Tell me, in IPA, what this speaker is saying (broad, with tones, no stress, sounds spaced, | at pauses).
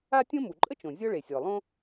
a˥ tʲ õ˥ m u˩ ǃʼ ə˥ t͡ʃ õ˩ zʲ ɔ˥ ɭ e˩ sʲ ɔ˩ lˠ õ˥